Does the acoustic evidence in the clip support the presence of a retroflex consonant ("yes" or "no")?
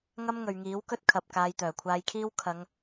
no